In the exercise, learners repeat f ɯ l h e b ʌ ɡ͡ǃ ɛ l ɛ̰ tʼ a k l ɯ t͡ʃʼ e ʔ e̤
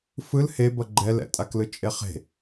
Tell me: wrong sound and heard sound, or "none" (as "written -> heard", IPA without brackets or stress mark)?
ʔ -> χ